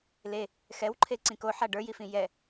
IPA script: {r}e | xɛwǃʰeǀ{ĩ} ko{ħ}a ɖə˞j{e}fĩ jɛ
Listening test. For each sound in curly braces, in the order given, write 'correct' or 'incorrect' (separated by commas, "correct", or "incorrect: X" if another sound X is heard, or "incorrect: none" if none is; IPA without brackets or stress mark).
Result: incorrect: l, correct, correct, incorrect: i